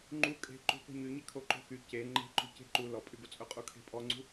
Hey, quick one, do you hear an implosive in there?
no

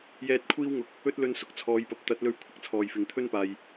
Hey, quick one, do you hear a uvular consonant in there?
no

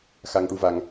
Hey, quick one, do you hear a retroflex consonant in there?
yes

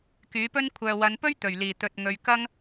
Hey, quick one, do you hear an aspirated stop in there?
yes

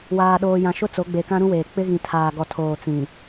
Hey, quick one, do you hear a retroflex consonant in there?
no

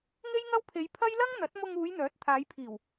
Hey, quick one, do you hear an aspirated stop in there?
yes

